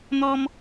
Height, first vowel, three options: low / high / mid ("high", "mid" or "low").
mid